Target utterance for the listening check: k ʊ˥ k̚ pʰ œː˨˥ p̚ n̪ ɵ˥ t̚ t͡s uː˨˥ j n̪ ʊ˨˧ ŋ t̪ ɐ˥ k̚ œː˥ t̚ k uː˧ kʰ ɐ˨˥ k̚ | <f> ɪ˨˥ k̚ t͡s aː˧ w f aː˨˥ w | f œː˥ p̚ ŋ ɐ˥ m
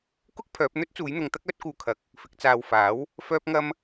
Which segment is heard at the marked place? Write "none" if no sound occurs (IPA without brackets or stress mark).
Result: f